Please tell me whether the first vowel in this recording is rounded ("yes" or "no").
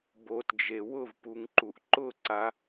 yes